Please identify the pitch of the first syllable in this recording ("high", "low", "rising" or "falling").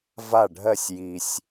falling